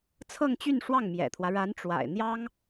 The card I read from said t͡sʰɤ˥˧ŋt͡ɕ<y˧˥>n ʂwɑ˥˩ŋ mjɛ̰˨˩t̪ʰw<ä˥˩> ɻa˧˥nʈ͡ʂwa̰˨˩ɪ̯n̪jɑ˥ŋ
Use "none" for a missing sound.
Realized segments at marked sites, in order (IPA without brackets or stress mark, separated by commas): y˥˧, ä˦